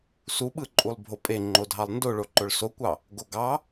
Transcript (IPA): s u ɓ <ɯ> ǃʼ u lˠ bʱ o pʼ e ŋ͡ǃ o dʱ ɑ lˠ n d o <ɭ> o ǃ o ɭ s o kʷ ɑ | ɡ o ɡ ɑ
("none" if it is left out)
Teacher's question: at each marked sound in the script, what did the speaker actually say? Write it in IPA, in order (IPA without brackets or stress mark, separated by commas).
ɯ, ɭ